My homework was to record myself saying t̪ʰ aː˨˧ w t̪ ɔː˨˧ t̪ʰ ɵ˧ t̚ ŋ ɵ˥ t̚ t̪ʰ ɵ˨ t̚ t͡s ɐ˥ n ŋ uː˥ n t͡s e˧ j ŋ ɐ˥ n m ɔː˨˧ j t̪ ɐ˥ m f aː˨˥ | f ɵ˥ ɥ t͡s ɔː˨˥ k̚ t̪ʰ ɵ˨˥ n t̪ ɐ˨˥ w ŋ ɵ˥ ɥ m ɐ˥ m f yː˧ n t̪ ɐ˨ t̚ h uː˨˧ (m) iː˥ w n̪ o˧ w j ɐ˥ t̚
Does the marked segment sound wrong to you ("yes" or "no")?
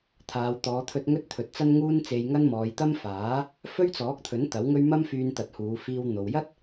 yes